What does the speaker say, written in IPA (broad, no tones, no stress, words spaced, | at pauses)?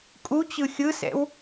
kʼut͡ɕɯ xʲɯsɛ̰w